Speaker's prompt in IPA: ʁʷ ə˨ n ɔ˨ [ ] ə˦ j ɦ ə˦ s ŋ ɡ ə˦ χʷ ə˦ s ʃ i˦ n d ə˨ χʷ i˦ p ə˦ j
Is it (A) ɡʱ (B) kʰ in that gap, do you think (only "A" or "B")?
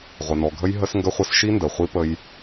A